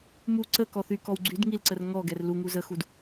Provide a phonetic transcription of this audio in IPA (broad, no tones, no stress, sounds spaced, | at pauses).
m u ǀ ə k ɔ θ y k ɔ w ɡ͡ǀ y d ŋ i l ǀ ə r ŋ ɔ ɡ ɛ r l u ŋ u z ə x u d